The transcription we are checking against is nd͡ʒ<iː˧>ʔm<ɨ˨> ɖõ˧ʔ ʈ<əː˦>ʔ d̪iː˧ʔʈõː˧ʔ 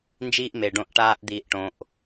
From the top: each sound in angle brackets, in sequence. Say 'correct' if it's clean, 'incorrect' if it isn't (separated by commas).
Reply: correct, incorrect, incorrect